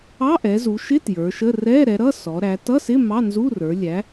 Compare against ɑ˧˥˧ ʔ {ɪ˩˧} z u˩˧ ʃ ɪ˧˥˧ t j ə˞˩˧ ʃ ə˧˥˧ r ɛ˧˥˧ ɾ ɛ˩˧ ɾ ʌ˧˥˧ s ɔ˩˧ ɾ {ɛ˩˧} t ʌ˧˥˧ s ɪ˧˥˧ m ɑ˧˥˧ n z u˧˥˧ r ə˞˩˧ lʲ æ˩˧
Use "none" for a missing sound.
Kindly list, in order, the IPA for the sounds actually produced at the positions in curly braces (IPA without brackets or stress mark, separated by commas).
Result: ɛ˩˧, æ˩˧